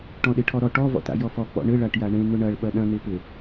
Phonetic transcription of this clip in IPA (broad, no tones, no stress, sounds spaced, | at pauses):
ʈ ɔ̃ ɗ e ʈʰ ɔ ɾ ɔ ʈ ɔ v ɔ̰ t a̰ j ɔ f ɔ k͡p ɔ̰ ɳ ɘ ɭ a ʈ j a ɳ ẽ n ʊ ɳ ɐ ɭ ɓ ɐ ɗ ɐ̃ n̪ e p ɘ